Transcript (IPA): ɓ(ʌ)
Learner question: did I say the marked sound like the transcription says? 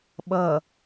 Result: yes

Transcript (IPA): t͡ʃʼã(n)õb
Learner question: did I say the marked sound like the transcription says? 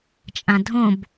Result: no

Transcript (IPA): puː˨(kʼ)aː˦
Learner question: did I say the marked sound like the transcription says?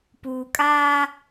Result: yes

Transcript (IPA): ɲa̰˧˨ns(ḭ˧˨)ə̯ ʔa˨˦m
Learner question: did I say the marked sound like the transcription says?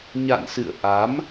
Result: no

